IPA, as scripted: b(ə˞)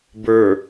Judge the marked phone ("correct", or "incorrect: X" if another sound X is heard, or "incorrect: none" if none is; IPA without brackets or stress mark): correct